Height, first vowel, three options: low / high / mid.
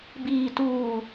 high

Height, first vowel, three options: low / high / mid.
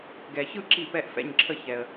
mid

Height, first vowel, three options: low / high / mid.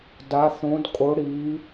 low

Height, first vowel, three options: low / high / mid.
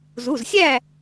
high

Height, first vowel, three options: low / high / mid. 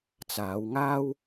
low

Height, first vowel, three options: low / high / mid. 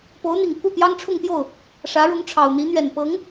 mid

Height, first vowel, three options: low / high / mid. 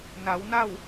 low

